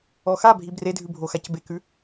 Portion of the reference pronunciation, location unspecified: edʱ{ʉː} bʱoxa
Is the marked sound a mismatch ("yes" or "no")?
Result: yes